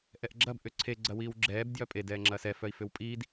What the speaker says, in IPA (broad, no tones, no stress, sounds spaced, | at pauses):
ʔ ɛ ʔ ɡ͡ǁ ɐ b ʔ ʏ ǀʰ e ɡ͡ǀ ɐ w iː w ɡ͡ǁ ɛː b d j œ pʼ e d ɛː ŋ͡ǁ ɐː s ɛ f œ i̯ f ʏ w pʼ iː d